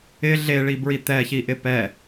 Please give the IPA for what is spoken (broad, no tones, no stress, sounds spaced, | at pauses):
ɪ ɮ e ɭ i b ɹ i t̪ ɛ ç i ʔ ɪ p ɛ